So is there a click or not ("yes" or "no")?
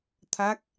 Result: no